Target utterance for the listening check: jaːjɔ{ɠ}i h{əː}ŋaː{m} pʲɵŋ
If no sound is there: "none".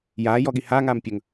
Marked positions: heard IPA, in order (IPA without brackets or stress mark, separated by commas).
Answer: ɠ, aː, m